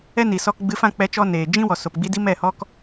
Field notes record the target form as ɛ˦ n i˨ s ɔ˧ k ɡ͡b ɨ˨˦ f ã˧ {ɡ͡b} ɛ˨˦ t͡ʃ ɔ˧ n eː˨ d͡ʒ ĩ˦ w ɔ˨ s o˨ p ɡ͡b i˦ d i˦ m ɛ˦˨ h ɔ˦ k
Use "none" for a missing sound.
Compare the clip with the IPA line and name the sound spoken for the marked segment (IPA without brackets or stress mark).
k͡p